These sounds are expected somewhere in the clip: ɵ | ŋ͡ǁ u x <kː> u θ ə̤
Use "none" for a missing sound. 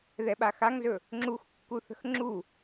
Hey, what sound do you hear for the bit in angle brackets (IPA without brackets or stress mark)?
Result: kː